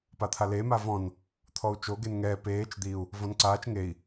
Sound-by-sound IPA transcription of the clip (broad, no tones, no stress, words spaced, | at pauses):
pat̪ʰale mavɔ̃n | t̪ʰɔu̯t͡ʃo ɡenŋɛː peːt͡ʃ d̪iu̯ | vɔ̃nǀaːt͡ʃ ŋei̯